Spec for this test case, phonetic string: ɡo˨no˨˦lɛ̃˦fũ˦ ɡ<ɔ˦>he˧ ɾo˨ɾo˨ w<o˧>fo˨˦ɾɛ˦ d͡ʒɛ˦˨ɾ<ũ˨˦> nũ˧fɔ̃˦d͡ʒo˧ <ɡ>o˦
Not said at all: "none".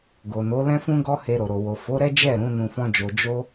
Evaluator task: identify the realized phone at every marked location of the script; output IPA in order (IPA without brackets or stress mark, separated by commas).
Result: ɔ˦, o˨, ũ˨˦, d͡ʒ